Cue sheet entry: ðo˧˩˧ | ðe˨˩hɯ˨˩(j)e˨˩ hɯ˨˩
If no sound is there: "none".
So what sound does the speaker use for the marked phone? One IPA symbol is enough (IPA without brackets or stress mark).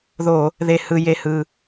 j